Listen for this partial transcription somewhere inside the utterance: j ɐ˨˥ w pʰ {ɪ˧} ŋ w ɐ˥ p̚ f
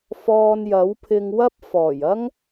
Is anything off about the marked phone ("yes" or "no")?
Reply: no